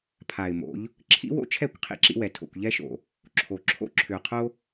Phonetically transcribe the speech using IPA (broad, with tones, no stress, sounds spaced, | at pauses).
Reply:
pʰ a˨ ɪ̯ m o̰˨˦ ʎ | ǁʰ ḭ˦ w o̰˦ t͡ʃʰ ɛ˦˨ kʷ qʰ ḭ˦ ǁ ḭ˦ w ɛ˨ tʰ o̰˨ kʷ ʎ ɛ˦ ʃ o̰˨ | ǁʰ o˨ ǁʰ o̰˦ ǁʰ ʏ˨ ʊ̯ qʰ o˦